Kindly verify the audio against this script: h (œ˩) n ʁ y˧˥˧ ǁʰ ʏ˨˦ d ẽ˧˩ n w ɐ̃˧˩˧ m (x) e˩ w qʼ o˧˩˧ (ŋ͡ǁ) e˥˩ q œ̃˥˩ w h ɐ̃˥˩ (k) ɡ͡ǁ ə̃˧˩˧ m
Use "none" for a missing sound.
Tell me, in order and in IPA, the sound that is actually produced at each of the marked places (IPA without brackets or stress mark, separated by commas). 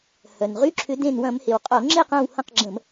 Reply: œ˩, h, ŋ͡ǁ, q